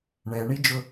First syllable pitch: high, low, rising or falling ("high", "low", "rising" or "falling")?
low